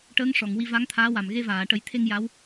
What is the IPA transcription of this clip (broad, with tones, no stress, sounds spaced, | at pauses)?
ʈ əː˧˥ ŋ ʂ ɔ˨˩˨ ŋ w i˧ v a˧˥ ŋ t̪ʰ aː˧˥ w a˨˩ m ɣ e˧ v aː˨˩˨ ʈ ə˨˩˦ j t̪ʰ e˧ ŋ j a˧˥ w